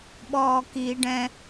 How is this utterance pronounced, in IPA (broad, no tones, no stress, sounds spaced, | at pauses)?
ɓ ɔː k i ɖ ɛ̃